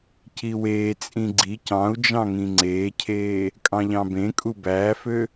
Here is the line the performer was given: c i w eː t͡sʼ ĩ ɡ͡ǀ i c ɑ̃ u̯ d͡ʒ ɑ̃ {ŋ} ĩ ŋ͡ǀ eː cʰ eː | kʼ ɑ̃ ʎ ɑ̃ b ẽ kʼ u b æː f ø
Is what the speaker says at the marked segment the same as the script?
yes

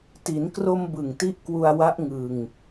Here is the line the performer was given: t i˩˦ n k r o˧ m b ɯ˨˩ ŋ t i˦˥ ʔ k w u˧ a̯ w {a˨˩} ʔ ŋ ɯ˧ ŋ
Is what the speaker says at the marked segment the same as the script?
no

